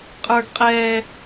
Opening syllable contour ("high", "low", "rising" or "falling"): high